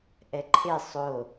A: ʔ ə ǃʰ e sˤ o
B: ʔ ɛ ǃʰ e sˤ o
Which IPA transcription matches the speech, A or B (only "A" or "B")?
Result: B